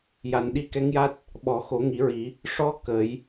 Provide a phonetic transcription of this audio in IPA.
j a˨˩ n ɗ i˧ k ɛ˧˥ ŋ j a˦˥ t̚ | ɓ ɔ˨˩˦ x o˨˩˦ ŋ i˨˩˦ ɹ i˨˩˦ | ʂ ɔ˧˥ k ə˨˩˦ j

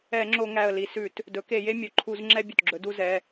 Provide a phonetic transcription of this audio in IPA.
ɛ˧˩˧ ŋ͡ǁ o˧˩˧ ŋ æ˩˧˩ ə̯ l i˧˩˧ s ʉ˧˩˧ t | d ɵ˩˥ k e˧˩˧ j e˦ mʲ ɵ˩ ǃʰ u˧˩˧ z ŋ͡ǁ ɛ˦ bʲ ø˩ t ɡ͡ǁ ɵ˩˥ d u˦ z ɛ˩˧˩

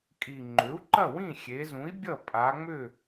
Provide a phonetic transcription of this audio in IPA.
kʼ i˨˩ ŋ͡ǃ ʏ˩˥ u̯ ǃ ɐ˥˩ w ĩ˥˩ xʲ e˩˧ z ũ˩˥ i̯ bʲ ʌ˥˩ pʼ a˩˧ ŋ͡m ʏ˥˩

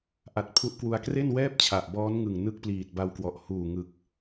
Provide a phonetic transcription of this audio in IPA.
ʔ a˨˩ t̚ pʰ u˦˥ ʔ k w u˧ a̯ k r e˥˩ n w ɛː˥˩ p̚ t͡ɕʰ a˨˩ ʔ b ɔː˦˥ n ŋ ɯ˨˩ ŋ n ɯ˥˩ k̚ p l iː˨˩ t̚ b a˧ w k w ɔ˨˩ ʔ h uː˨˩ ŋ ɯ˨˩ k̚

